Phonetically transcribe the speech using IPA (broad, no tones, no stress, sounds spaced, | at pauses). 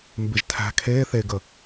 m b ɪ ʒ tʰ æ̤ kʰ e θ e ɡ ə